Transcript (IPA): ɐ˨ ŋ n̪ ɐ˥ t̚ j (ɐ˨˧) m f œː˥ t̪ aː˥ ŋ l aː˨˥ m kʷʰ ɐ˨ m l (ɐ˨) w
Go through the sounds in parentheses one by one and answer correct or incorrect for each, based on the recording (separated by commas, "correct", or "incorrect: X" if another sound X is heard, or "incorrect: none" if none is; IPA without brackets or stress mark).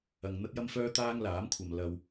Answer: incorrect: ɐ˥, correct